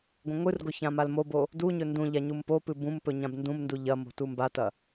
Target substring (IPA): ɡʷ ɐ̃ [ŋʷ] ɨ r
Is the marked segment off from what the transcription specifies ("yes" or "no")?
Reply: no